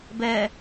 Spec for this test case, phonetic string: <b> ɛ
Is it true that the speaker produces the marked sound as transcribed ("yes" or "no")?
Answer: yes